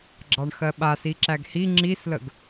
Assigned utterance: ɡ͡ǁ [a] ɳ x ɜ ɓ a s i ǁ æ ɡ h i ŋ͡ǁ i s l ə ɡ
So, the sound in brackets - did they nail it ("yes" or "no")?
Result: no